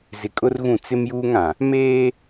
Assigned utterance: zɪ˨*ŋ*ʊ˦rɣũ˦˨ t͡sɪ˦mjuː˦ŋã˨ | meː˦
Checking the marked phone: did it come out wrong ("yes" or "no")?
yes